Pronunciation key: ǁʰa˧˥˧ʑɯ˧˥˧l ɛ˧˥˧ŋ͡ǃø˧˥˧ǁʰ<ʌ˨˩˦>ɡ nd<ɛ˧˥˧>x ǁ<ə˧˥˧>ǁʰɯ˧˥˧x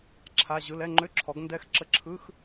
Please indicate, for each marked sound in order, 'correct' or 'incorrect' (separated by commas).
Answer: incorrect, correct, correct